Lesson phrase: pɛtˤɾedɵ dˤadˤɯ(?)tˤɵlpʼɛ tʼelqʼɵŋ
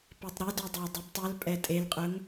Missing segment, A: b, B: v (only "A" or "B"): A